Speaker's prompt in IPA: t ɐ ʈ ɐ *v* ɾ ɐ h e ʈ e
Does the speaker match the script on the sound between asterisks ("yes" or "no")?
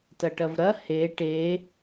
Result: yes